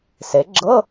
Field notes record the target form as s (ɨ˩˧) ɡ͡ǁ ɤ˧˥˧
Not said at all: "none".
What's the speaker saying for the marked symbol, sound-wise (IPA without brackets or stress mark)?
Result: e˩˧